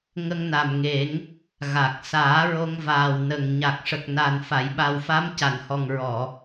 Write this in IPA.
ŋ ə˧ ŋ n a˨˩ m ŋ e˨˩˦ ŋ | ɣ a˨˩ k̚ s aː˨˩˦ ɹ o˧ ŋ v aː˨˩ w n ə˨˩ ŋ ɲ a˨˩ k̚ ʂ ə˨˩ k̚ n a˨˩ n f a˨˩˨ j ɓ a˨˩ w f a˧˥ m c a˨˩˨ n h ɔ˨˩ ŋ ɹ ɔ˨˩˨

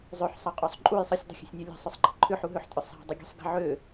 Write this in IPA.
zˤ ø ħ sˤ ɐ qʼ ø sˤ ǃʼ u j sˤ ə sʲ dˤ ə̤ xʲ ə̤ sʲ nʲ ɐ lʲ ɛ̤ sˤ ø sˤ ǃ ə̤ ǃʰ ʏ ħ u ɦ ø ħ tʼ ʏ sˤ ɛ̤ dˤ ə ɡʲ ṳ sˤ ɡ ə̤ ʕ ø

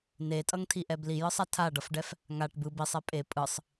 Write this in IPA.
n e tʼ ʌ ŋ tʰ i ʔ ɛ b l i j ɯ sˤ a tʰ a ɖ ʌ f ɖ ɛ f | ŋ a ʈ b ɯ b i sˤ ɛ pʼ e pʼ ɯ sˤ

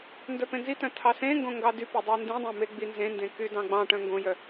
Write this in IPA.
n d œ p ẽ n z i t œ̃ tʰ ɑ s ẽ ŋ ɡ õ ŋ ɡ ɑ d y p e dˤ ɑ n d ĩ dˤ œ̃ m e ɡ͡b i n z ẽ n d ẽ k y d ɑ̃ ɡ͡b ɑ̃ ʈ œ̃ ŋ ɡ õ j œ

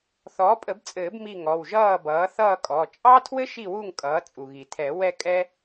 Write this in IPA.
θ ɔː˩˥ pʼ ə˨˩˦ b t͡sʼ ɘː˨˩˦ b m i˥˨ ŋ ɔ˩˧˩ w ʒ ʌː˥˨ b ʌː˩˥ θ ʌː˥˨ kʼ ɔ˩˧˩ t͡ʃʼ ɑ˥ tʰ w ɘ˥ ʃ i˥˨ w u˥˨ ŋ kʼ ʌː˩˥ t͡sʼ u˩ ɣ i˩ tʰ ɛ˨˩˦ w ɛ˥˨ kʼ ɛ˥

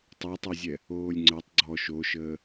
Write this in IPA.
tˤ ɛ tˤ o zʲ ɛ | oː lʲ ŋ͡ǀ ə˞ tˤ ɡ͡ǀ ɔ ʃ o ʃ əː

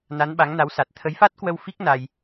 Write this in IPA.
n a˨˦ n ɓ a˨˦ ŋ n a˨˦ w s a˨˩ t̚ t̪ʰ ə˨˦ j f a˦˥ t̚ k w ə˧ w f i˦˥ k̚ n a˧ j

